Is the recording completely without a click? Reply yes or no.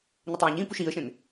yes